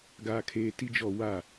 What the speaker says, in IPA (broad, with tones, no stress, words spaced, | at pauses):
ɡaː˦kʰeː˦ ti˦d͡ʒɔ˦˨ wa˦˨